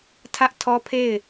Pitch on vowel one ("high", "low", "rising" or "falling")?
high